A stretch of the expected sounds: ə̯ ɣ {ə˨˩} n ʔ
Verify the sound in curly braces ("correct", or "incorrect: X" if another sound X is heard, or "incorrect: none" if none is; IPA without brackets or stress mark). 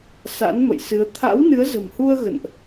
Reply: incorrect: ə̰˧˨